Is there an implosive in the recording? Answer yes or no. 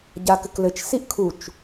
no